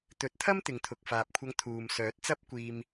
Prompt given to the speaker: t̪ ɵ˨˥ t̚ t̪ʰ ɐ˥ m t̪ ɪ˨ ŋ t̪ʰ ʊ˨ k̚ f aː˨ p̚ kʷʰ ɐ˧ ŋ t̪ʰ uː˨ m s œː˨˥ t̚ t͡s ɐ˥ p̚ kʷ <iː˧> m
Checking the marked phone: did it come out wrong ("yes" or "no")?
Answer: no